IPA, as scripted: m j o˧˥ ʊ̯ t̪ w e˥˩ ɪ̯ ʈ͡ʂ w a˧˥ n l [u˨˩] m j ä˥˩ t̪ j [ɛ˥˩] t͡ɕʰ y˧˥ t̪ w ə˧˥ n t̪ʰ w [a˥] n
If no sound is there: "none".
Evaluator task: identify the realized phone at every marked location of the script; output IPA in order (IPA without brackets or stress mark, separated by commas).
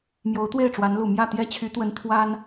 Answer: u˨˩, ɛ˥, a˥